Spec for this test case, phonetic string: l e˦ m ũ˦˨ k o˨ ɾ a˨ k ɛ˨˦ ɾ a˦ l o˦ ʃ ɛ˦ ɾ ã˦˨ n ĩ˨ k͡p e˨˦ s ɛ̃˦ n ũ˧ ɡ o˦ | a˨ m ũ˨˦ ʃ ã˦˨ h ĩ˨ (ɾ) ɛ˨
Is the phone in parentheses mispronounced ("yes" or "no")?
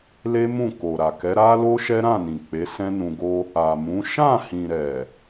no